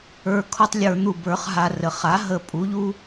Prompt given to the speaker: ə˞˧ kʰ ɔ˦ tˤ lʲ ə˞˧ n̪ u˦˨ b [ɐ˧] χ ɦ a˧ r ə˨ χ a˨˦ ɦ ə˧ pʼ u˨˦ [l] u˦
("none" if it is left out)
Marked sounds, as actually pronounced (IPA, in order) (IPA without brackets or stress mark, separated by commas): ə˞˧, ʎ